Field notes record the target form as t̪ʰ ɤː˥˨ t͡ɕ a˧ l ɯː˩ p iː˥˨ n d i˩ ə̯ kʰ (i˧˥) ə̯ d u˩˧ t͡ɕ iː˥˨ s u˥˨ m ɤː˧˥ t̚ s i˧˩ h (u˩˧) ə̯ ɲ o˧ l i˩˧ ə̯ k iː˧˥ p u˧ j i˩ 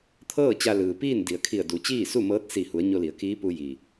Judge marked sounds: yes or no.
no, yes

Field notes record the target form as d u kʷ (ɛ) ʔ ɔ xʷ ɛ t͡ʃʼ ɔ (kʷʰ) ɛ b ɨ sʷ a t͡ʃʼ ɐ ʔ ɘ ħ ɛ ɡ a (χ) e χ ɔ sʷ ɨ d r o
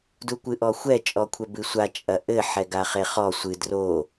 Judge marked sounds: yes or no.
no, yes, yes

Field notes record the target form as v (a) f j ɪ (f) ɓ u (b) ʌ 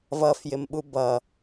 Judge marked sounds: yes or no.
no, no, yes

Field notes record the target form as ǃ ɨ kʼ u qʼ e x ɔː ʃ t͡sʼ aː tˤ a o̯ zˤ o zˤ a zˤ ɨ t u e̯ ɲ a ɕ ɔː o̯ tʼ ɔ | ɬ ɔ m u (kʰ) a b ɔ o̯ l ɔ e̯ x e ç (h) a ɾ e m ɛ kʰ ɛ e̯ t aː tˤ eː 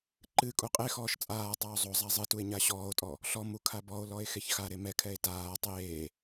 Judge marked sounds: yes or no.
yes, no

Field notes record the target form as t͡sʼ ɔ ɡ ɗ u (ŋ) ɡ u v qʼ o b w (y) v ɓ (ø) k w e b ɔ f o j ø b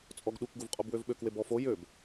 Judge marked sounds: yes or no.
no, no, yes

